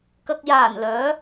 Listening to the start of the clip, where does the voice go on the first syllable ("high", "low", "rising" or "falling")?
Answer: low